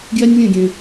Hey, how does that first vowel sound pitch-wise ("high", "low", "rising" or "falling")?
high